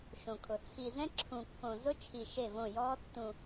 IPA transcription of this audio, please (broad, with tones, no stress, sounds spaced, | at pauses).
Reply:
ʃ õ˨ kʰ ʊ˨ t͡sʰ i˨ z ɛ̃˦ ǁʰ ũ˨ kː õ˨ z ʊ˦ t͡ʃʰ i˨ ʃ e˦˨ v õ˦˨ j ɔː˦ tː ũ˨